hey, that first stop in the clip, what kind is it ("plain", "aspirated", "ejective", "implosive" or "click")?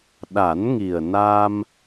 implosive